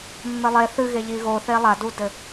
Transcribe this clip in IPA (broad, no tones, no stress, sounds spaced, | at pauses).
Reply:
mː ɘ lˠ e θ ɨ ɣ e ʎ i ɣ o θ e lˠ a d u d ɘ